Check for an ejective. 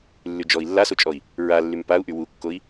present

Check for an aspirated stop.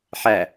absent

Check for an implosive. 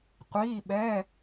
present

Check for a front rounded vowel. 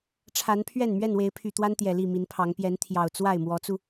present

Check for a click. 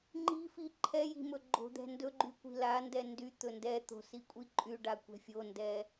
present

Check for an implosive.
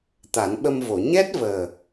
present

